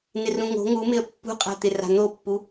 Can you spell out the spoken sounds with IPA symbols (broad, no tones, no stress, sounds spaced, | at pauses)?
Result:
n ɪ r ũ ŋ o̤ ŋ u m ɪ ə̯ pː ṳ qʼ a̤ t̪ ɪ r a̤ n̪ o pː u